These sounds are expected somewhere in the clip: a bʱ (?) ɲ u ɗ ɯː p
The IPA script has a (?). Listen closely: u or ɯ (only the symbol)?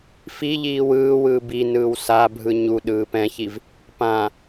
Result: ɯ